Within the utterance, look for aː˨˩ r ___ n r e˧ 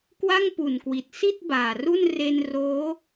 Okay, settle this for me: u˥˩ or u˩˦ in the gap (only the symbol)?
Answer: u˥˩